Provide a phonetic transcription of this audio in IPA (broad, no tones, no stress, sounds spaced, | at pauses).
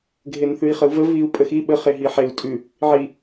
ɡʱ e n θ ʉ i̯ χ ə u̯ v ə v i u̯ pʼ ə x i ɓ ə χ e ɦ i ħ e u̯ tʼ ʉ | ʕ i